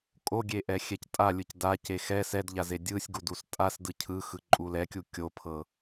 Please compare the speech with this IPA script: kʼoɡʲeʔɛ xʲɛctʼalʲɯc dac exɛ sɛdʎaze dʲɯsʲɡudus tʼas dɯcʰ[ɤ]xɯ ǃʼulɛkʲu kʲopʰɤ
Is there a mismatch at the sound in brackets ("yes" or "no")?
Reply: yes